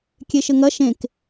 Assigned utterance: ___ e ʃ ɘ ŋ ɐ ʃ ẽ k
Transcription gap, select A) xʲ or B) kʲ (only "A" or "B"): B